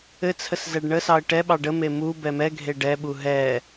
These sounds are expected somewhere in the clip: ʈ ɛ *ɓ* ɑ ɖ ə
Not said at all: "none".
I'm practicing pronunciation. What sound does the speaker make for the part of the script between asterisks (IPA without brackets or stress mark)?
ɓ